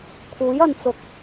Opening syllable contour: rising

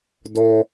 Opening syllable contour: high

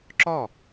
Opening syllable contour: falling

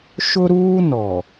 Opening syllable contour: high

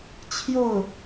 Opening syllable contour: falling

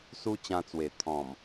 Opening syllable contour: high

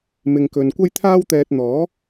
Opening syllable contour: low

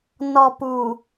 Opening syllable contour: low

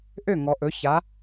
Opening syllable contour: falling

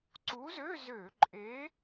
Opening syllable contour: rising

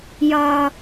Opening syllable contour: high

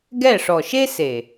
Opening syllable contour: falling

